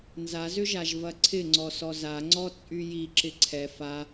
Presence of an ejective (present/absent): present